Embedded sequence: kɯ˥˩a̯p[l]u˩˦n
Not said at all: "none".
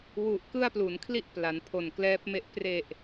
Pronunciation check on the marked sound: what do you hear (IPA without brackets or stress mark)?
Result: l